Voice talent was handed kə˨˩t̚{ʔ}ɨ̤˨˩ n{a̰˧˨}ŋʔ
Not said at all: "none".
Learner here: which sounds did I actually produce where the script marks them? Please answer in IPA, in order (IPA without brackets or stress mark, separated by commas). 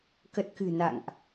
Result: k, a̰˧˨